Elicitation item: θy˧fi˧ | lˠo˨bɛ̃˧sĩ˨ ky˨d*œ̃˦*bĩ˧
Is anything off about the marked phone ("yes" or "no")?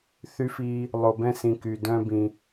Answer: no